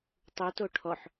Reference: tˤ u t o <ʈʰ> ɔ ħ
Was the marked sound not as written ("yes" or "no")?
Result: no